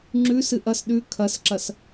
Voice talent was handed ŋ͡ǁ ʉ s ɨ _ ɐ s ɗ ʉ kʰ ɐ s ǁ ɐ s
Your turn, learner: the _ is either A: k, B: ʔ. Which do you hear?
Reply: B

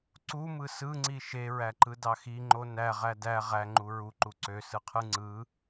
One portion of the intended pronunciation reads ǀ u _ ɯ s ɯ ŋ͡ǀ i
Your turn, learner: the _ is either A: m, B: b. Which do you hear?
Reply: A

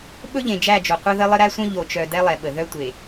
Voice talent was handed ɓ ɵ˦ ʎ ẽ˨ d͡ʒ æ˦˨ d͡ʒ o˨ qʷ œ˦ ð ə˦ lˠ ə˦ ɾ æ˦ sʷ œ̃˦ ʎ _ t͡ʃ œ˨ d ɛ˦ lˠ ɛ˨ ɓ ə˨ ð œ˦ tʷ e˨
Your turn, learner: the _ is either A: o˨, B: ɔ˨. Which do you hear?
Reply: A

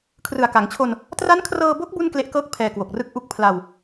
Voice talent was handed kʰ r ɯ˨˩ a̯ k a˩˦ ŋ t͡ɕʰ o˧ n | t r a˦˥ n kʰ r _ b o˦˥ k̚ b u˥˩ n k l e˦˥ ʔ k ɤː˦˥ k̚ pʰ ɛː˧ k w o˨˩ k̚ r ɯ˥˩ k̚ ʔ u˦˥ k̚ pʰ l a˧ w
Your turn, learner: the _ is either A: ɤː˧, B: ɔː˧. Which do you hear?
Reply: A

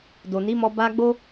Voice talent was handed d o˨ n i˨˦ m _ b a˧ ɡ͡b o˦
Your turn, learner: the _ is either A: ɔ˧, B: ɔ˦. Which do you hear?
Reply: A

